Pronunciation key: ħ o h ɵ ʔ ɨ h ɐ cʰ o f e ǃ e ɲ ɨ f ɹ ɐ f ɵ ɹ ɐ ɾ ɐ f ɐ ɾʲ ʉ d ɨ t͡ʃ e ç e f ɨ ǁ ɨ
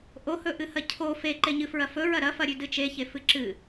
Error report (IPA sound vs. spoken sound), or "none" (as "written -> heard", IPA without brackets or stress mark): ħ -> ʔ